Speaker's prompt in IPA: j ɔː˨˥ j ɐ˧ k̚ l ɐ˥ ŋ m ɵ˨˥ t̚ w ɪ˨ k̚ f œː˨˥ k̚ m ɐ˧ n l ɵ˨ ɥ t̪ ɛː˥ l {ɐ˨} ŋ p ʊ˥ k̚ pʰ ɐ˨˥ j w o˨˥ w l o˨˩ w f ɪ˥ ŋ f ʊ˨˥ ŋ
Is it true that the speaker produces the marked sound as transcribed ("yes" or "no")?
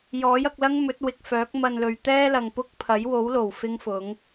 yes